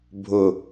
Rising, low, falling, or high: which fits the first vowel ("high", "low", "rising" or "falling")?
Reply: low